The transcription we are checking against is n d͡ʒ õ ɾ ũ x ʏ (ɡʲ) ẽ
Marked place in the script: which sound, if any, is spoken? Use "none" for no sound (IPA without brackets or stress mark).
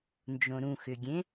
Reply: ɡʲ